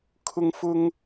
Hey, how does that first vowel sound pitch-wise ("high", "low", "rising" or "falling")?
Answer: high